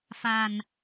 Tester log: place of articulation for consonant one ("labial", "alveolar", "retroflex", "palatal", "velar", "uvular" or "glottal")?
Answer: labial